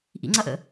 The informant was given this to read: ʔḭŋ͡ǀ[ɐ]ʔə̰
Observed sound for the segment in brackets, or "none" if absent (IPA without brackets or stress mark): ɐ